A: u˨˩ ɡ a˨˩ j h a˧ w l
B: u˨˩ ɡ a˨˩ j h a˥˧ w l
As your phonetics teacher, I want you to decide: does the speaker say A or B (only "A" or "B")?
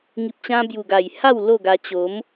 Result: B